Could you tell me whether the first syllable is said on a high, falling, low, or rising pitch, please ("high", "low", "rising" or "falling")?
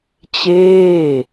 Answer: falling